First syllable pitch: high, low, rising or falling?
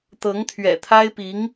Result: rising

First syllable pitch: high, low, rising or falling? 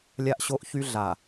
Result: high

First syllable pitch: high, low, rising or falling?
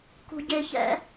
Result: low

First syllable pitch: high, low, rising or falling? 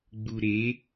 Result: low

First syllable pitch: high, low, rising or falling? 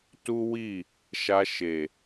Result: high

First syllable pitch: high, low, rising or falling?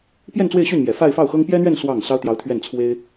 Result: falling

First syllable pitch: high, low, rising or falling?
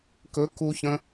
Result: rising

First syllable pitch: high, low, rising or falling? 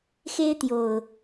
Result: high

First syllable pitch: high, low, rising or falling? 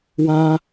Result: high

